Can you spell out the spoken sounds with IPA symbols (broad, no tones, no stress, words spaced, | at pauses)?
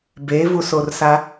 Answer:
bevusorsa